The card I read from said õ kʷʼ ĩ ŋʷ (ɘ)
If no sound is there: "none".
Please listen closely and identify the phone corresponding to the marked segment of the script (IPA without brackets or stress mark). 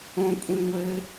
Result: ɘ